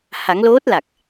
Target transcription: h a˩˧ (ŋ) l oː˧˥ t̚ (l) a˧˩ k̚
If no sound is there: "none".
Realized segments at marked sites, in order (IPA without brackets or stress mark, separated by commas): ŋ, l